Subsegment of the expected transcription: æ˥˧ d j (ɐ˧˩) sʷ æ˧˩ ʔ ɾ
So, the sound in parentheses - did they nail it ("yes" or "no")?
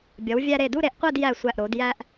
no